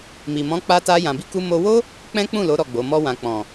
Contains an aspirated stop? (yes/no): no